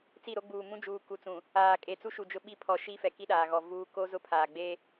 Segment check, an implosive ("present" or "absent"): present